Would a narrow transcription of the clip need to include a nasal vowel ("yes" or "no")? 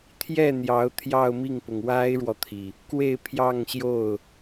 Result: no